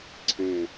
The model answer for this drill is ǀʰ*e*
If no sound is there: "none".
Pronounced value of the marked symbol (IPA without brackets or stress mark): ẽ